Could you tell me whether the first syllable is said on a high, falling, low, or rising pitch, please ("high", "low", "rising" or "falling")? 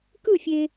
falling